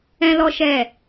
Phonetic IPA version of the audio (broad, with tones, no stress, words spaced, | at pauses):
ɛ̃˦lɔ˦ʃɛ˦˨